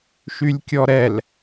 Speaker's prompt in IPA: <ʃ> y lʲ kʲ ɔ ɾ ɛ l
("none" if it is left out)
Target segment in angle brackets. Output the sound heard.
ʃ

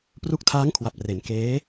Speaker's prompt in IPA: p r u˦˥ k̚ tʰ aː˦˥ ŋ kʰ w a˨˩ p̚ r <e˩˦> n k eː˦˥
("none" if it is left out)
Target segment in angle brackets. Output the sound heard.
e˩˦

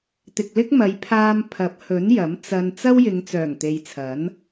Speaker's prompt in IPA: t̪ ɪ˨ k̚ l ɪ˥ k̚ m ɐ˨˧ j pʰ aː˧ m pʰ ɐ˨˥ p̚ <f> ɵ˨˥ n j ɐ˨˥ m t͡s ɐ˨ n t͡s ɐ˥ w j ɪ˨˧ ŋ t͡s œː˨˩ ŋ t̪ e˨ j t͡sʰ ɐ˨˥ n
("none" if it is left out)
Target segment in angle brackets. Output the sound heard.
h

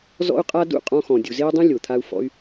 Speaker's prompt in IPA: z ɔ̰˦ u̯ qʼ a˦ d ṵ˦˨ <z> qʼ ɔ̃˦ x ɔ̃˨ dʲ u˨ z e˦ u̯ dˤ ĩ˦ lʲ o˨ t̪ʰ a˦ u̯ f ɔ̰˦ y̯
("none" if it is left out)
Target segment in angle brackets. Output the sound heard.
none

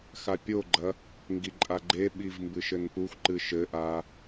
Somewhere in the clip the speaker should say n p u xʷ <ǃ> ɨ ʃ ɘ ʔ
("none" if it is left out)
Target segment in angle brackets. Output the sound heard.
ǃ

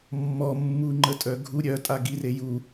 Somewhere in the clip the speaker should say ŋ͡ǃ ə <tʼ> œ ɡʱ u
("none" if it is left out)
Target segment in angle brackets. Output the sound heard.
tʼ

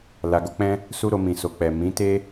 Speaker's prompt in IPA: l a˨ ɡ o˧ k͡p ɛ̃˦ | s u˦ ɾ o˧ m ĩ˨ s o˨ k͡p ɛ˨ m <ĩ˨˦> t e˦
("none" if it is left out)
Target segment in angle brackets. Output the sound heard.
ĩ˨˦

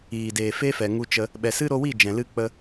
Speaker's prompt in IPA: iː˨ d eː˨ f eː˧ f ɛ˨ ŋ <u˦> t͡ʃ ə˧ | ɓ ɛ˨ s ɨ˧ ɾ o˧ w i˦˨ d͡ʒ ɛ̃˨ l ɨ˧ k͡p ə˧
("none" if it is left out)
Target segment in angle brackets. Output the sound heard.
u˧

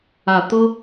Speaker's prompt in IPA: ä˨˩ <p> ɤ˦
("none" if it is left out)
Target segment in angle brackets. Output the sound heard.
t̪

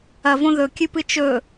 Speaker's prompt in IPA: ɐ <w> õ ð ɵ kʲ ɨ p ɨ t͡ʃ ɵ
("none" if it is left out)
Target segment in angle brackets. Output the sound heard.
v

